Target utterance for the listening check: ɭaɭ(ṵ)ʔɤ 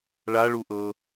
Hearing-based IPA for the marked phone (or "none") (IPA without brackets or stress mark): u